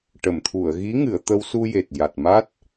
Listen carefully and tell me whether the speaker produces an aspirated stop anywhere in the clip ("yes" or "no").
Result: yes